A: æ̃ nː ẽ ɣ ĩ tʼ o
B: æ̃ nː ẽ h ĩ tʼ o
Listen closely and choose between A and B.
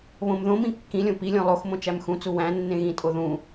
A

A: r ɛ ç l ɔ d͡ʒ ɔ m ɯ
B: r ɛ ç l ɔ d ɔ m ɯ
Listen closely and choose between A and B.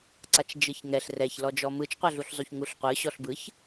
A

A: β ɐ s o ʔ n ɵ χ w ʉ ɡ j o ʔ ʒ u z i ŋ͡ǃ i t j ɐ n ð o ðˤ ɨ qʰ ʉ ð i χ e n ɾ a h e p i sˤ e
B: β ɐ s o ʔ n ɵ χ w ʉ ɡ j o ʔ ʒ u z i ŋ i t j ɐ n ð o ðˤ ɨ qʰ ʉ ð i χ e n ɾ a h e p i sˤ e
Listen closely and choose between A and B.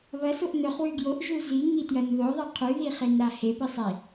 B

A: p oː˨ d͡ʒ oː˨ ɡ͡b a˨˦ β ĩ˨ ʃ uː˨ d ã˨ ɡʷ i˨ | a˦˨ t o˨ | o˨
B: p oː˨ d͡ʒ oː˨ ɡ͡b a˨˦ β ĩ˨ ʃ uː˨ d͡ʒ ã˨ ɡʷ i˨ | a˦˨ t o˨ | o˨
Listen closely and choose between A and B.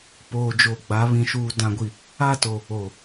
A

